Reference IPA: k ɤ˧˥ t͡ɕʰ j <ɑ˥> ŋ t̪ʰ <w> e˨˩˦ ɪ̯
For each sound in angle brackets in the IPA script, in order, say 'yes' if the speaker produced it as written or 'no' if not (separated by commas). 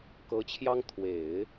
yes, yes